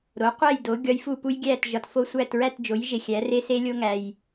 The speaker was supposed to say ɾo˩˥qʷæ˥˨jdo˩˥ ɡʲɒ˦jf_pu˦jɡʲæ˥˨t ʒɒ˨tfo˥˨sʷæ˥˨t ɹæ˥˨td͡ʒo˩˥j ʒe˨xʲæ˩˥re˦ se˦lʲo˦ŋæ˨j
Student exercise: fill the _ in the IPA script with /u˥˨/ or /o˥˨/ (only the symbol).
u˥˨